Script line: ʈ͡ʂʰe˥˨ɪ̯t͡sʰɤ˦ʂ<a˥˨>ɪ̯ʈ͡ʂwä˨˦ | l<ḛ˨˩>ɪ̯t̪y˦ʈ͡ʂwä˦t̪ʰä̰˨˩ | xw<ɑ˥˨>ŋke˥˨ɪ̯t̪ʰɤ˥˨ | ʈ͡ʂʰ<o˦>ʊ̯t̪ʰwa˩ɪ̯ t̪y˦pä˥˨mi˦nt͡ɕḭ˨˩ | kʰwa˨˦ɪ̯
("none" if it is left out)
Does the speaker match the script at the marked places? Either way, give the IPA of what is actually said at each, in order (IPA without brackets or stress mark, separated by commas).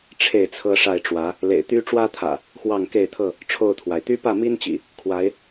a˥˨, ḛ˨˩, ɑ˥˨, o˥˨